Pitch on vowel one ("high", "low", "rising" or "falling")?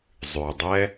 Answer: low